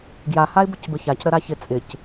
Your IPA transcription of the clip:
ɡ j a h a ɪ̯ b ə c b ə ç a c ɾ ə ɾ a ç ɪ t͡sʼ ɪ c

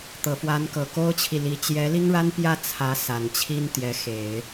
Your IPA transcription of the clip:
t̪ ɤ˨˩ f w a˧˥ n k ɤ˨˩ k o˥ ʊ̯ t͡ɕʰ i˨ l i˧˥ t͡ɕ j ɛ˧˥ l i˥ ŋ ɻ a˥ n p j ä˥˩ t͡sʰ ä˧˥ s a˨˩ n t͡ɕʰ i˥ n t̪ j ɛ˧˥ x e˨˩˦ ɪ̯

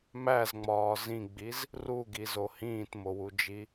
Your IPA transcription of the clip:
m æ z ŋ͡m ɒː z ĩ ɡ͡b i z | r u ɡ i z o h ĩː t m o w u d͡ʒ i

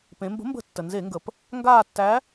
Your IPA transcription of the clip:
p ẽ˩˧ m b ə̤˨˥ m b ə̤˧˩˧ tː ə˩ n z e˧˩˧ ŋ ɡ ə˩ p | ŋ ɡ aː˦˨ tː æ˨˥

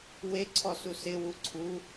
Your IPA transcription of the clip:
w e ǀʰ ɔ s u s ɪ w u ǀʰ u

